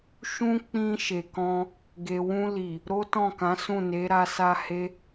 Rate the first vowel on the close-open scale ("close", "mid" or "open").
close